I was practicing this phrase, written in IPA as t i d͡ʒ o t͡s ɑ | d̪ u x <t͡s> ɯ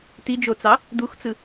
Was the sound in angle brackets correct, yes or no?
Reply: yes